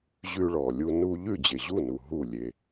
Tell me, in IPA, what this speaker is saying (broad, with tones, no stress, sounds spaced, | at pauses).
ʑ ʉ˧ ɭ ɔ˨ lʲ u˧ n u˧ ʎ ʉ˦˨ d͡ʑ e˨ ʑ u˦˨ n u˨ ɦ u˦˨ lʲ e˧